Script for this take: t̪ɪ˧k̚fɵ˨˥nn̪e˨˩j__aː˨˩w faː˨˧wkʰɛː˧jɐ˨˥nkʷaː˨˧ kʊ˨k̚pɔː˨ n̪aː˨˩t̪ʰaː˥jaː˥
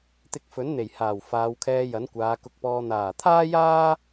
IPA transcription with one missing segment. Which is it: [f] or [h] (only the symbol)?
h